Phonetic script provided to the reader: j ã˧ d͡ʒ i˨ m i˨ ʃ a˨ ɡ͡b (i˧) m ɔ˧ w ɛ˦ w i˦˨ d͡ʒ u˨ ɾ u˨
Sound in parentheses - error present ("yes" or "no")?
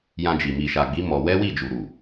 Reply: yes